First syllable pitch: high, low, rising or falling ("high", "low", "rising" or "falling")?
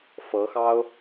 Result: rising